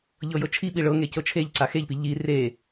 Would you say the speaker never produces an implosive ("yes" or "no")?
no